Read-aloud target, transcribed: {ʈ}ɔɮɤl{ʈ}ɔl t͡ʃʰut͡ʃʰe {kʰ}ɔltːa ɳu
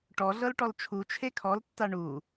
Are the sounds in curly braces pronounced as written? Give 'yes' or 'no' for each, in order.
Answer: yes, yes, yes

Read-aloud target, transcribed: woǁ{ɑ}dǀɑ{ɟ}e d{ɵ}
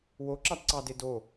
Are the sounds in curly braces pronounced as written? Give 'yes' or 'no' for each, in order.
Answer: yes, no, no

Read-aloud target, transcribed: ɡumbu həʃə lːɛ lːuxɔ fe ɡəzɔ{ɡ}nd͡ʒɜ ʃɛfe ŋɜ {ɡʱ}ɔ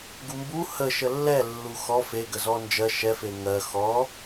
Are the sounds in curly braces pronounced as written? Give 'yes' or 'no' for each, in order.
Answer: no, no

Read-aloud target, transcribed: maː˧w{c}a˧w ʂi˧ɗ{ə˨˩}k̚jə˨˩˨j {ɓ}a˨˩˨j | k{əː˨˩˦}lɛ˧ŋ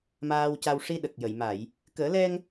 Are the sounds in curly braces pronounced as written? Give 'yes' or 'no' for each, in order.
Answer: yes, yes, no, yes

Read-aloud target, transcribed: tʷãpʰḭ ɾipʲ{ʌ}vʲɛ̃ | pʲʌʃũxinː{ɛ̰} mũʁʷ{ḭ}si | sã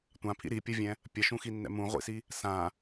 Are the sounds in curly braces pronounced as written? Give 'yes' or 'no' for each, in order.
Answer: yes, yes, yes

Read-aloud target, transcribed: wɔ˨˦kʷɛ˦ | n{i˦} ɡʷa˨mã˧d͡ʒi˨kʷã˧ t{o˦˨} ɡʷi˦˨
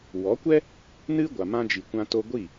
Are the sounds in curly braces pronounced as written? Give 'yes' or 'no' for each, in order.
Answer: no, no

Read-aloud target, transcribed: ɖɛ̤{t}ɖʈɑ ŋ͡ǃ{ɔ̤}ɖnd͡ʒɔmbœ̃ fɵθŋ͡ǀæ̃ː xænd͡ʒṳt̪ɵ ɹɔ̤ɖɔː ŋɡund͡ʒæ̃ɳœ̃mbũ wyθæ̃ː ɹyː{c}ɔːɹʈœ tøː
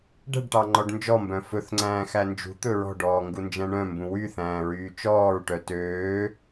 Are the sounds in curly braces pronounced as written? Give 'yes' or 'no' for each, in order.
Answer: no, no, no

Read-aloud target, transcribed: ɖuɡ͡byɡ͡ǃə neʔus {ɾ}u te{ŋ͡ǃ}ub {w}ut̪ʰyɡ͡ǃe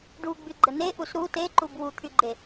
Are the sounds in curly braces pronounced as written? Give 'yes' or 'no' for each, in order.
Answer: yes, no, yes

